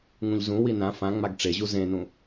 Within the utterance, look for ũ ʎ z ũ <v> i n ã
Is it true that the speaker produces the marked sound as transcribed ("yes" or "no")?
no